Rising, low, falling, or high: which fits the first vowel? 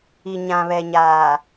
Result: low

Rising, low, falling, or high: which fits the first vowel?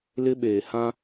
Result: high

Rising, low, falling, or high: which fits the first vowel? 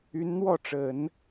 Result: rising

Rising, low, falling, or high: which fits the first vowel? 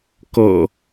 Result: low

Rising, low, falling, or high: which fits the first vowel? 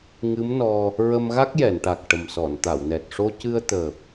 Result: rising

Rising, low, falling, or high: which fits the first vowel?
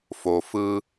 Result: low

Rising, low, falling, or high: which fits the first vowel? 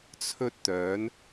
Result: high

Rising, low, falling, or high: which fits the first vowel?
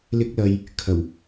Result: high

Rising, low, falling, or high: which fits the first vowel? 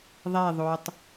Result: falling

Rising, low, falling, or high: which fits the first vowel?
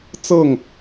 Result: falling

